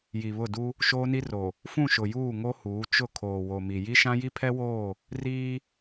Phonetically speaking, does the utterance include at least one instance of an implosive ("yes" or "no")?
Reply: no